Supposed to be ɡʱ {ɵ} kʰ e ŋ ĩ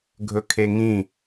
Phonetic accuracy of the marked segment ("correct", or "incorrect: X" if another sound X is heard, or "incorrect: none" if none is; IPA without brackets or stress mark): correct